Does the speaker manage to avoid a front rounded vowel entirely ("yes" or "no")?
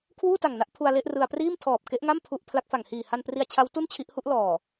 yes